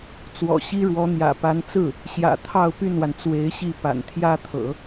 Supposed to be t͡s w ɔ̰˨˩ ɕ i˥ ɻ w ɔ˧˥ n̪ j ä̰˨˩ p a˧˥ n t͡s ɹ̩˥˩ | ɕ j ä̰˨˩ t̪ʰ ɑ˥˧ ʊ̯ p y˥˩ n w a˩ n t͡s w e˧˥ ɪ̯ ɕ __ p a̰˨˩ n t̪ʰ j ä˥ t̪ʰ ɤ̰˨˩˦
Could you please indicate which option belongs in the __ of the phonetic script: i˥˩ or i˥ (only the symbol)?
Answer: i˥˩